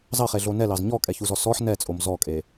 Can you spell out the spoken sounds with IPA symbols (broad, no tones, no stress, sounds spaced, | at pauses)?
z ɑ χ e ɮ o n ɛ l ɑ z ɲ ɔ kʼ ɛ ç u z ɔ s ɔ ħ n ɛ t͡sʼ o m z ɔ kʼ e